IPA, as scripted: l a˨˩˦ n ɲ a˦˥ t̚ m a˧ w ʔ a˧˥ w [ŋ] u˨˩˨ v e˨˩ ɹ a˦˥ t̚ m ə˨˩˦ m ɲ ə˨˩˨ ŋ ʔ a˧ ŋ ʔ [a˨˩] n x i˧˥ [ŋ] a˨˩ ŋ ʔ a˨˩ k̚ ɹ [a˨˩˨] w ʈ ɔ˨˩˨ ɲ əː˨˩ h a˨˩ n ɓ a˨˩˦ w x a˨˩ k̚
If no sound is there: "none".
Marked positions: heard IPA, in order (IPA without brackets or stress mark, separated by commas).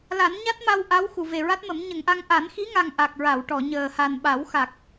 x, a˨˩˦, ŋ, a˨˩˨